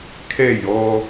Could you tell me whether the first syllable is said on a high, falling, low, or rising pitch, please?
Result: falling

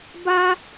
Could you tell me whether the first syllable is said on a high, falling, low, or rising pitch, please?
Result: high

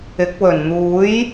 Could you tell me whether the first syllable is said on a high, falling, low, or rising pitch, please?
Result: rising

